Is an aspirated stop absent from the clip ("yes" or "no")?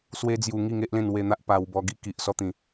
yes